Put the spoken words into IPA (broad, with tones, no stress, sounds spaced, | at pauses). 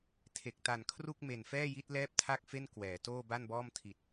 tʰ e˨˩ k̚ t a˨˩ n kʰ r u˥˩ k̚ m e˨˩ n f ɛː˥˩ j i˦˥ t̚ l ɛː˥˩ p̚ tʰ a˥˩ k̚ f e˥˩ n k w ɛː˩˦ t oː˥˩ b a˥˩ n b ɔː˥˩ m tʰ i˨˩ t̚